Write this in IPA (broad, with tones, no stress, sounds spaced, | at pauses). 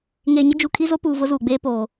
ŋ eː˨ ɲ ɪ˦ d͡ʒ u˨ kʰ i˦ z o˦ p uː˨ v ʊ˦ z uː˨ ɡ͡b eː˦ p oː˨